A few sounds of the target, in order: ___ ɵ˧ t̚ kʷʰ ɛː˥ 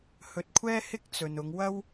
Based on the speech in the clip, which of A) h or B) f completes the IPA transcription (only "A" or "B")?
A